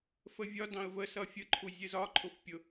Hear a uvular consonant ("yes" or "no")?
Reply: no